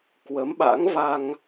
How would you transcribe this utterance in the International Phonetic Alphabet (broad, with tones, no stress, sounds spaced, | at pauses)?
k w ə˨˦ m ɓ a̰˧˥ ŋ v a˧ ŋ